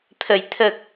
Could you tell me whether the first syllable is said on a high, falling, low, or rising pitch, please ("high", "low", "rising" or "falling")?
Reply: low